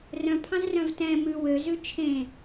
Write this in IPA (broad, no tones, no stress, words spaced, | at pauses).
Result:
rœ̃pʰɑ̃zrœ̃v tɛ̃ mʉ wøzʉ t͡ʃʰẽ